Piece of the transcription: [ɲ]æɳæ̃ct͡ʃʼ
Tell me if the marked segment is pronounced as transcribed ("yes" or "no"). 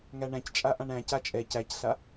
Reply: no